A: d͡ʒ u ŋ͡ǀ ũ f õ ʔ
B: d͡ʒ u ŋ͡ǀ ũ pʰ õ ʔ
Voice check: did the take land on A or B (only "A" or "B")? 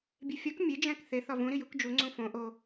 A